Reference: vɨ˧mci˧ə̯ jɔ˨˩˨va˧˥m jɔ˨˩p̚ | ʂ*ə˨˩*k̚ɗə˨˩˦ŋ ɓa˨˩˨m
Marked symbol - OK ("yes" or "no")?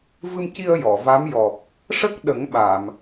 no